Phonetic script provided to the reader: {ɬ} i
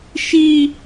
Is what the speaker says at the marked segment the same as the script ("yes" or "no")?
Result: no